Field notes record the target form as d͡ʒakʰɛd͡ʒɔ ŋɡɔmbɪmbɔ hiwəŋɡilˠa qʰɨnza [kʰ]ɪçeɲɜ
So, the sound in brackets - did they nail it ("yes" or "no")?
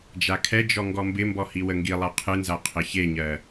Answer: no